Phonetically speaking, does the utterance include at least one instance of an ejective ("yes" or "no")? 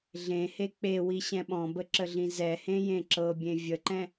no